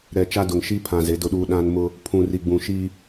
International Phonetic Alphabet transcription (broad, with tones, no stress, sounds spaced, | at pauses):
ɾ ɛ˨ t͡ʃ a˦ d ʊ˨ ŋ ʃ i˦ pʰ ã˨ z e˨˦ d ʊ˦ ɗ uː˦ ɗ ã˦ n m ʊ˦ | pʰ ũ˨ r i˨ ɡ͡b ũ˨ ʃ i˦